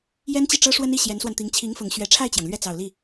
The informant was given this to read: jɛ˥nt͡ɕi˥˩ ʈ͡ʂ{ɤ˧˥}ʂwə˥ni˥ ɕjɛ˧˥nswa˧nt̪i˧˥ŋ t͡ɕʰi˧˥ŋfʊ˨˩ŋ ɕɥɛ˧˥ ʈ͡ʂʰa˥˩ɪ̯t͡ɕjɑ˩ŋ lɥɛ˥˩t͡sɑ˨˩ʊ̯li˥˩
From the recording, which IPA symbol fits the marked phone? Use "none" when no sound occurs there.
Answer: ɤ˥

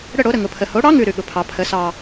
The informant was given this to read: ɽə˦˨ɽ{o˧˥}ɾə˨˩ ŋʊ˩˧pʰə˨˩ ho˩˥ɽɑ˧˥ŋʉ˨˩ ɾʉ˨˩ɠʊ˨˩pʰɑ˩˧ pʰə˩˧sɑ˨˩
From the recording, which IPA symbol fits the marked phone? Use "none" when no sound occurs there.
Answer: o˩˥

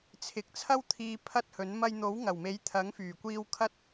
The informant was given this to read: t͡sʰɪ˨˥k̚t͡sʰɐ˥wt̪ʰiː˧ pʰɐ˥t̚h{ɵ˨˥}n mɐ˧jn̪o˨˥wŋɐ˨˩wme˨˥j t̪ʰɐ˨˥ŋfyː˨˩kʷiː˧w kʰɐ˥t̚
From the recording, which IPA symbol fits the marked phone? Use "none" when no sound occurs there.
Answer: ɵ˨˥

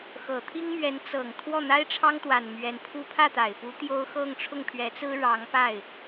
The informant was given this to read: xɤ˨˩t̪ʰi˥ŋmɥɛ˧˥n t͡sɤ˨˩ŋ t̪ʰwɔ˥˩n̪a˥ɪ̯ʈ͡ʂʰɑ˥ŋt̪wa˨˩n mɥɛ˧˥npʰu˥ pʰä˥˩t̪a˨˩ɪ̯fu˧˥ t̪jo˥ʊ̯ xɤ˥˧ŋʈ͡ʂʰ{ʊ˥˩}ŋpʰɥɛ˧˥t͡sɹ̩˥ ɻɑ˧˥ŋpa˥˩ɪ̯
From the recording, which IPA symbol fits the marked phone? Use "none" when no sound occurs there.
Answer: ʊ˥˩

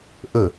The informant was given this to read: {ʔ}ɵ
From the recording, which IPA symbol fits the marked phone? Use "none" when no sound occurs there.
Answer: ʔ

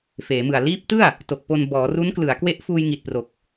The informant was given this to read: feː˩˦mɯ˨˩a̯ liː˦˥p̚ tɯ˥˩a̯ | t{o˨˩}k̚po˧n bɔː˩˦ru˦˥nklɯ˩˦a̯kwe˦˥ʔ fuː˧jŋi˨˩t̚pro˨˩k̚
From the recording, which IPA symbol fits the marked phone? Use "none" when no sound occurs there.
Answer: o˨˩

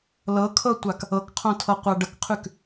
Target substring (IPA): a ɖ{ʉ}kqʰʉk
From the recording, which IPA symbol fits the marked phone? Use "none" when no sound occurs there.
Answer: ə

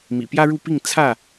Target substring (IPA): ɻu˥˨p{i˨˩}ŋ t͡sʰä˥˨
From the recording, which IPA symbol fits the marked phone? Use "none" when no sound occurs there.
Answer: i˥˨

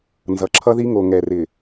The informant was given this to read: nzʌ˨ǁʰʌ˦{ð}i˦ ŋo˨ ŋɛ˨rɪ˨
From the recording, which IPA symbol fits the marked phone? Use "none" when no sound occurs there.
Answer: ð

